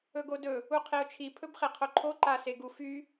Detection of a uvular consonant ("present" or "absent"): present